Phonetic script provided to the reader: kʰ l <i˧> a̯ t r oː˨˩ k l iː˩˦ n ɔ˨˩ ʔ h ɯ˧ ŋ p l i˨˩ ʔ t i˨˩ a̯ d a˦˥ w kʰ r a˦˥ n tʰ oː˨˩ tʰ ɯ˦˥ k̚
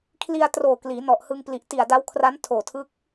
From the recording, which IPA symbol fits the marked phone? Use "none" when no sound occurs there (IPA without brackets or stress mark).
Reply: i˧